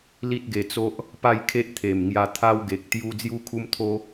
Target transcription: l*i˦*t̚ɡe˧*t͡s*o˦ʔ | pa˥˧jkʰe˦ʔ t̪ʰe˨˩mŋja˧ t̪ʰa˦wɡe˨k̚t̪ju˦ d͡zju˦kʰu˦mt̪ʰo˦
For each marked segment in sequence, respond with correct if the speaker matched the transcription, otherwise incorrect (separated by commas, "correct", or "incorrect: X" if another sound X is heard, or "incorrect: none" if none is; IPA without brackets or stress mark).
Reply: correct, correct